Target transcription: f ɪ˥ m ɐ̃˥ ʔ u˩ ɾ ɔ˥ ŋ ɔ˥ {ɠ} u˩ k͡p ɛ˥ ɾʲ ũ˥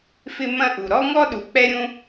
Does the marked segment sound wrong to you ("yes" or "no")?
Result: yes